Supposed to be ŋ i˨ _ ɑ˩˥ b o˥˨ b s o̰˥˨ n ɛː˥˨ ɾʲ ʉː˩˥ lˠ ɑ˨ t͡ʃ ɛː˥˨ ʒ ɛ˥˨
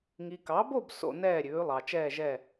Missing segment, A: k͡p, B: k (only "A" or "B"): B